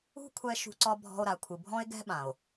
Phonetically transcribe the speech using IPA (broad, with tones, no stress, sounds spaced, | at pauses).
ṳ˦ kʷʰ ɛ˧ ʃ ṳ˧ ǀ ɒ˧ bʱ ɔ̤˧ o̯ ɾ a˨ kʷʰ ɨ˨ bʱ ɔ̃˦ e̯ ɡ ɛ̤˦ ɓ ã˨ o̯